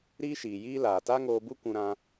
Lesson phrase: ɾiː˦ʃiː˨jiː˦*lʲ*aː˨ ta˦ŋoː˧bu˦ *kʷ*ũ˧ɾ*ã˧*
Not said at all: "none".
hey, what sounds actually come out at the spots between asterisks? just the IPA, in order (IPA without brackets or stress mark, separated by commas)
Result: l, kʷ, ã˧